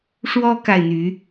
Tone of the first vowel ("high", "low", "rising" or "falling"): high